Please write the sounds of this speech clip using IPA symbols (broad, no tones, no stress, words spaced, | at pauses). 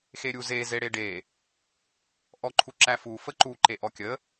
xeɾʲuze zeɽeɖe | ʔɔǃʰuǁæfu fəǃu ǃeʔɔkʲə